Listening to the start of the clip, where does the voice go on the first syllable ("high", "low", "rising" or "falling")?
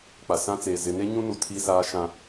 low